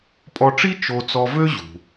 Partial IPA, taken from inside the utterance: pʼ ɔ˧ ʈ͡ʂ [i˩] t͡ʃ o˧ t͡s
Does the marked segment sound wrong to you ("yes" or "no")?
yes